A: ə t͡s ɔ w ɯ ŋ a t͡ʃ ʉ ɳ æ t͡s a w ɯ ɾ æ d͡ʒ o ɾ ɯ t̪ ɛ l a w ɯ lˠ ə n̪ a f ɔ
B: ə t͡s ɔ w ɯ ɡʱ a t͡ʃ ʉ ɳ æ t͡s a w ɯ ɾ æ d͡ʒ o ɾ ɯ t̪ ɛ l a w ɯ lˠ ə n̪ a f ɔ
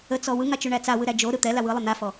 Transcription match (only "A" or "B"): A